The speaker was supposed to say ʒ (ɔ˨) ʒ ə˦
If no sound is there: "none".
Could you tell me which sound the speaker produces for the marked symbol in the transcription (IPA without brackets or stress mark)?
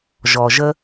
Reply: ɔ˨